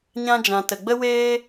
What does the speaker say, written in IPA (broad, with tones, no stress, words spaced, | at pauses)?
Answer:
ɲã˧d͡ʒã˨ tə˨ɡ͡bə˦weː˦